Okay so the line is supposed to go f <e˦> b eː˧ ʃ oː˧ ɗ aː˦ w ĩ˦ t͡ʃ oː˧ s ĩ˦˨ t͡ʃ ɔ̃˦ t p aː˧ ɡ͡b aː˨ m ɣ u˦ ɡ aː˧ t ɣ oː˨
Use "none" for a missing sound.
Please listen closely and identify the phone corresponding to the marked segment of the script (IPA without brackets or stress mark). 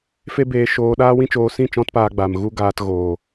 e˦